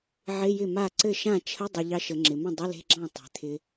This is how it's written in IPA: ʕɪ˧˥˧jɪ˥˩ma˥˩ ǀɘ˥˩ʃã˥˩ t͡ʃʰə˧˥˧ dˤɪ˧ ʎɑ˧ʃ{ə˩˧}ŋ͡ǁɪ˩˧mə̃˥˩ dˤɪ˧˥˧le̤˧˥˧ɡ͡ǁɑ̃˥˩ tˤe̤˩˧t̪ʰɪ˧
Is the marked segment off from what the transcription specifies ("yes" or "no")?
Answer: no